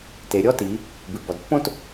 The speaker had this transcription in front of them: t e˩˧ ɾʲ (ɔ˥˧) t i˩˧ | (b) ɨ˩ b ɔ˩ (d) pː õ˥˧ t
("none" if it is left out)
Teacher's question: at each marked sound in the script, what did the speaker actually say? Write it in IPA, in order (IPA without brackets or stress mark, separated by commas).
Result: ɔ˥˧, b, d